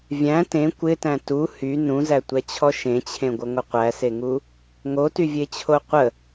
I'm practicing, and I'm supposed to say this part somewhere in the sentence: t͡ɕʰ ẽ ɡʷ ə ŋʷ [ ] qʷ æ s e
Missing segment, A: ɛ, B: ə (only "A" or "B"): B